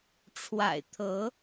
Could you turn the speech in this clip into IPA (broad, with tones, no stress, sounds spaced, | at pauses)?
ʈ͡ʂʰ w a̰˨˩ ɪ̯ t̪ʰ ɤ˨˦